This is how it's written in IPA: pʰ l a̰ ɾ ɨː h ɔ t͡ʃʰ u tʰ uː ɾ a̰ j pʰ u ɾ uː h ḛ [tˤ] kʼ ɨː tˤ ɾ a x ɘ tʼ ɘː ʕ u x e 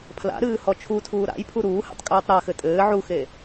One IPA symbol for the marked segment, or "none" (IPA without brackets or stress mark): tˤ